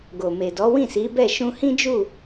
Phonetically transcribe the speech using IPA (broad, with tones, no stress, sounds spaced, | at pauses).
ɡ o˨ m e˨ d ɔ˨˦ w ĩ˦˨ s i˨˦ b ɛ˦˨ ʃ ũ˧ h ĩ˦ d͡ʒ u˦˨